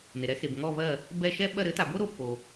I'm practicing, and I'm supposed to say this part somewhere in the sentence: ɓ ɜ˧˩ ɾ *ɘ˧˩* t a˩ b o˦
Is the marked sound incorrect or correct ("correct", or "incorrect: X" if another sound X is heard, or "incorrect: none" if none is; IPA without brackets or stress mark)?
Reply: incorrect: ɘ˩˥